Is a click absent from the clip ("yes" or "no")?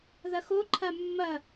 no